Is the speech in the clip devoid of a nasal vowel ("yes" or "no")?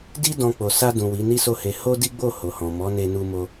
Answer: no